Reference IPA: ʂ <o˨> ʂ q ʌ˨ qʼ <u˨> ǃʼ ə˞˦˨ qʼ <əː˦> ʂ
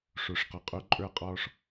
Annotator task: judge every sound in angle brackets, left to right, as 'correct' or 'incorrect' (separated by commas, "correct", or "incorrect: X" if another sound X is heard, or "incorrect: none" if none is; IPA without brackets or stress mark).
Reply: correct, correct, incorrect: ɔː˦